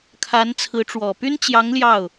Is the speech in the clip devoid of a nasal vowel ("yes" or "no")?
yes